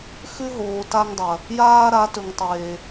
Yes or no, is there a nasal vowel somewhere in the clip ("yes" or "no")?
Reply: no